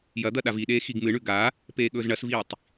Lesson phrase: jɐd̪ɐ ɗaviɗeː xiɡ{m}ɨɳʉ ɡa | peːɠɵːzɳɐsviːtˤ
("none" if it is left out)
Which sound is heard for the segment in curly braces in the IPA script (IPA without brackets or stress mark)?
m